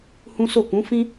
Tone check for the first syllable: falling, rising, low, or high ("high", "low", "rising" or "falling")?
high